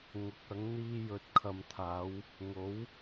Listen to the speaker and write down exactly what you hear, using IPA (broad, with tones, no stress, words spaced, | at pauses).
ŋʊ˨˥k̚ɐ˨˥ŋ n̪iː˧jɵ˨t̚kʰɐ˨mt̪ʰaː˨˧w | ŋo˨˥w